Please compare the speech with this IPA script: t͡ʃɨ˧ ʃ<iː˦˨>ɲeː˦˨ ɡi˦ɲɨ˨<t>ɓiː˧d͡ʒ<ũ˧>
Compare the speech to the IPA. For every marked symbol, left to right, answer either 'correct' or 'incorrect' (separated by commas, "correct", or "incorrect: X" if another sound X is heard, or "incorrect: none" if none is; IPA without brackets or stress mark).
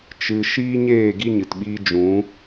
incorrect: iː˦, correct, incorrect: ũ˨˦